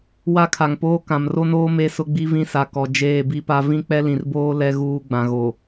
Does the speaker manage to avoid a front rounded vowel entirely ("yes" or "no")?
yes